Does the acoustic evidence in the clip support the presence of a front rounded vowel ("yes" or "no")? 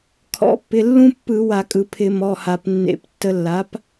no